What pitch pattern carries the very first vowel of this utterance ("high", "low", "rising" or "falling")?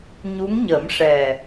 rising